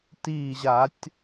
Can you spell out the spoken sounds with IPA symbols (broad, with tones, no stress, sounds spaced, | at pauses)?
t iː˧˩ ʑ a˧˩˧ tʲ